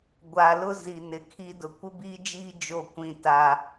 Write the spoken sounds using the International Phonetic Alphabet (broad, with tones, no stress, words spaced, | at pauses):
ɡʷa˨ lʊ˦ zi˨nɪ˨kʰi˦ dʊ˨kʷɪ˦biː˦d͡ʒiː˦ d͡ʒo˦˨ kʷĩ˦˨ta˦